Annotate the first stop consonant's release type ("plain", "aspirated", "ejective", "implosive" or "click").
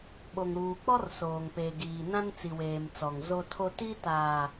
implosive